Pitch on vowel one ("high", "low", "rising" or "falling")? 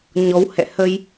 rising